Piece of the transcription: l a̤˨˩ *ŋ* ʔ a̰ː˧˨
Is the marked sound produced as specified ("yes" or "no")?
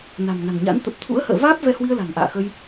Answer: yes